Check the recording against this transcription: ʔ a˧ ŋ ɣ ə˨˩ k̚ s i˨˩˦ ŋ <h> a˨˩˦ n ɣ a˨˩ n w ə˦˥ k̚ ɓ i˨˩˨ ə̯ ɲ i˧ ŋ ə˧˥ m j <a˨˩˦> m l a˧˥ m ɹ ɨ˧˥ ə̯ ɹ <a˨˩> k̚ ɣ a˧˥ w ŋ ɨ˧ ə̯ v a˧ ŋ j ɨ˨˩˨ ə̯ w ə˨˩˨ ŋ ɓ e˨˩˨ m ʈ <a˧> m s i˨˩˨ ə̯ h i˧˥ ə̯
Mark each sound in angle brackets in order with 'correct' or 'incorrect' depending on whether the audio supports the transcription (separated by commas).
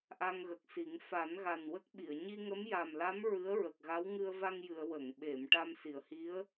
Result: incorrect, incorrect, incorrect, correct